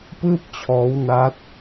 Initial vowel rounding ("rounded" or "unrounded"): unrounded